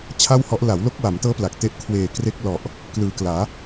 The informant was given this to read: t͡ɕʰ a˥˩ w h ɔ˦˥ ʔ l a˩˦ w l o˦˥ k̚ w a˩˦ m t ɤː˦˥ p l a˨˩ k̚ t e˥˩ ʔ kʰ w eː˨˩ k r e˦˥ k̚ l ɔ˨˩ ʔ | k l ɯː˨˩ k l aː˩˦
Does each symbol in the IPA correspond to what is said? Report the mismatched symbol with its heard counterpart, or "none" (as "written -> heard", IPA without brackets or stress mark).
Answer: none